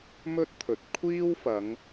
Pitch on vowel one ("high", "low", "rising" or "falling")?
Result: high